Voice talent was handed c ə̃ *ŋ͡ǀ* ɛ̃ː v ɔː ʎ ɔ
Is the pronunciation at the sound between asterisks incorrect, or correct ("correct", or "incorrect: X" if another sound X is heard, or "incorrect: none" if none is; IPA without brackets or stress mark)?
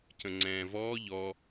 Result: correct